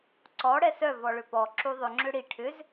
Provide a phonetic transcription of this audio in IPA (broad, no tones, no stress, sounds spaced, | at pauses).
ǀ ɔ ɽ ɛ s œ v ɔ ɭ ʏ p ɔ ǁ u ðˤ ʏ ŋ͡ǁ ʏ ɽ i ʈʰ ʏ z